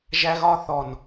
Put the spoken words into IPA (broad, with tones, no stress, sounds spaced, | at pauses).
ʒ æ˦ ɣ ɒ˦ θ ɔ˨ n